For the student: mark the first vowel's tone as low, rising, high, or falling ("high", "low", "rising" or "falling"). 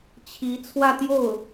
rising